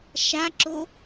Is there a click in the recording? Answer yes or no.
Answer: yes